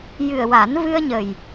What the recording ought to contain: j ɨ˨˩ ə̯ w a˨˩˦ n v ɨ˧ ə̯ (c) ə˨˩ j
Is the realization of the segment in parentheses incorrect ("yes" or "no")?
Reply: yes